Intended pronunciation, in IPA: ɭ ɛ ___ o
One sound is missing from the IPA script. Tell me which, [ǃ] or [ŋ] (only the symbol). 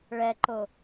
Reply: ǃ